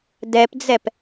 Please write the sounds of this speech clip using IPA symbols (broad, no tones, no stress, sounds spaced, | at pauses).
d ɛ p d͡z ɛ p